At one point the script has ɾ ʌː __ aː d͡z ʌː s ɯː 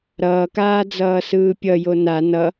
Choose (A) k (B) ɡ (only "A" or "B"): A